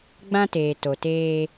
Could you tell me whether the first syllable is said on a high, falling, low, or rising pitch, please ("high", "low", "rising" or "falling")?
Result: high